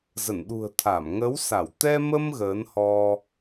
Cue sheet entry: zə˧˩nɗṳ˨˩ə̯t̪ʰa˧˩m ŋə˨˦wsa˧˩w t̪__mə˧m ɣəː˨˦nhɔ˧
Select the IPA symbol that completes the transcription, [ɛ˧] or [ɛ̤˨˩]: ɛ˧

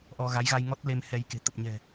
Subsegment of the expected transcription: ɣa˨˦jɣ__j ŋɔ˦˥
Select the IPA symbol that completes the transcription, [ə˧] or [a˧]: a˧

